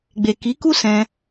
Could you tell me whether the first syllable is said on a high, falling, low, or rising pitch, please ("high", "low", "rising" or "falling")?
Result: low